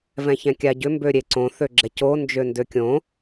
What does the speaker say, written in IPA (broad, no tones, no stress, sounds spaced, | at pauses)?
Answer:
v ɛ̃ ç ɛ̃ kʲ a ɟ ʏ m b ø ɾʲ e ǀ õ θ ø ɡ͡ǁ ɛ c o n d͡ʒ ø n d ø kʲ õ